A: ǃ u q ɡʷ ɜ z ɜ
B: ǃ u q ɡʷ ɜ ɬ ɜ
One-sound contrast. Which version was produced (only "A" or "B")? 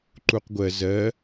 A